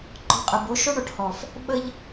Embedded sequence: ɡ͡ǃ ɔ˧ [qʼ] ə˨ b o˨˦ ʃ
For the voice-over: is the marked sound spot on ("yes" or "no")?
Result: yes